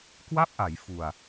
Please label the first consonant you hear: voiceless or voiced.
voiceless